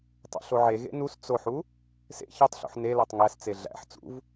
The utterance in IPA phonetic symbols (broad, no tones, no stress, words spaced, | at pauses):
tˤṵɬoʕe ɣḛnus t͡soħu | sḛ çetˤɬṵħ ne lɜtˤŋæs t͡seɮæ̰ħ t͡sṵv